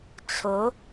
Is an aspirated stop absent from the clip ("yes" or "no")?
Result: no